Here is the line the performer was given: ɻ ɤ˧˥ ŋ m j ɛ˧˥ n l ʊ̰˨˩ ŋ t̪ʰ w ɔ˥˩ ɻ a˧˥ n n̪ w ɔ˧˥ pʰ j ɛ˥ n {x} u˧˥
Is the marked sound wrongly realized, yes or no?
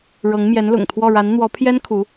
yes